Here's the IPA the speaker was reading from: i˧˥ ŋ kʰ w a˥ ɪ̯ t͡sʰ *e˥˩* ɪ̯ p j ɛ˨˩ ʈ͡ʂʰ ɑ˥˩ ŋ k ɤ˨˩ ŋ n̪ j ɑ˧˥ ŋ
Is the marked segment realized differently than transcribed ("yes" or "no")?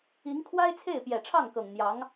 no